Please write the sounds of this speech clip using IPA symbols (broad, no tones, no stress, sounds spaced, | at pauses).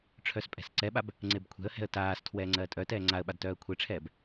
ʈ͡ʂʰ œ s pʼ ɛ̤ s ǀ ɛ ɓ a b | ŋ͡ǀ e b kʷʰ ɛ̤ ə̯ h ɛ̤ ə̯ t aː s tʰ w ɛː ŋ͡ǀ ɜː tʼ œ t ɛː ŋ͡ǀ a ə̯ ɓ a d t œː ə̯ kʷʰ e ʈ͡ʂʰ ɛː b